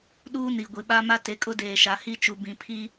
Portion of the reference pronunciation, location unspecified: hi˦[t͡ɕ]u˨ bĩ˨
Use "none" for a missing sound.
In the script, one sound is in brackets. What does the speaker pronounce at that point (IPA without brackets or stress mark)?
t͡ʃ